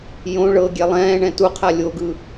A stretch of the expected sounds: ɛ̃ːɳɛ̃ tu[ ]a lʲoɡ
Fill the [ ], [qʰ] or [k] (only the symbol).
qʰ